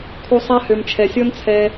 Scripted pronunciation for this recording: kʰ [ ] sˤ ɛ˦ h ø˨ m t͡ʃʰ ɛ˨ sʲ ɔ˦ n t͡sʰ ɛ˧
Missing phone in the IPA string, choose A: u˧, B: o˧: A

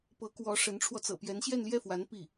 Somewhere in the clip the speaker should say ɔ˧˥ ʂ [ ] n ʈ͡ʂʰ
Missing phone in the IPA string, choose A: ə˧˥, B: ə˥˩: A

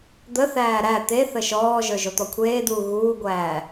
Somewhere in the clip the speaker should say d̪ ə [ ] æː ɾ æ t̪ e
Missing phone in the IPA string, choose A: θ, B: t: A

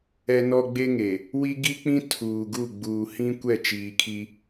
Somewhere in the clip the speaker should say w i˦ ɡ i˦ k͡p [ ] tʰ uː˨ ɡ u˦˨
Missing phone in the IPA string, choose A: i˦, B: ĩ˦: B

